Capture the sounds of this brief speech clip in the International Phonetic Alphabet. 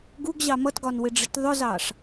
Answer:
ɡuɡʑɑ mʌtɡɒn wɪɖ͡ʐɪtðˤʊzɑʂ

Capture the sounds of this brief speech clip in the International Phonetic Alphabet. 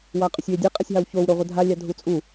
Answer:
waqʼʏsʲwedʲe qʼasʲɦɑwçow ɾoʁʷədʱa lʲɑdʱut͡sʼu

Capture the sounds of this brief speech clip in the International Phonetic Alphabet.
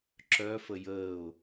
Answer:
ǁœ fəjəːʊ̯

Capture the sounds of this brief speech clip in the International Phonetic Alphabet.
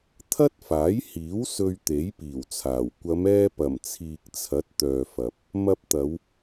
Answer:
t̪ʰɐ˥t̚faː˨˥jhiː˨˥w sɵ˧ɥt̪e˨˥jpiː˨˩wt͡sʰaː˨˩w kʷɐ˨˧mɛː˧pɐ˨˩mt͡sʰiː˨k̚ t͡sʰɐ˨˥t̚t̪œː˨fɐ˨p̚ | mɐ˧p̚t̪ɐ˨˧w

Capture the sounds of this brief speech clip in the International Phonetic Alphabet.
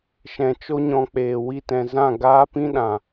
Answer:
ʃɛ̃˨t͡ʃo˦ɲɔ̃˧k͡peː˨ wi˧tɛ̃˨zã˦˨ ɡaː˦pĩ˦ɗã˨

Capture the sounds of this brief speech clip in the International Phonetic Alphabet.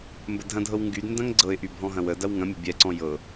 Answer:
mbədʱɐ̃dʱɤw ŋɡydndɐ̃ŋ ɡ͡ǀɤɪ̯ʔy bʱɔ̃ɦɐ̃wədɐw ŋɐ̃mʲə̤ bʲɛǀɔ̃ jɤ

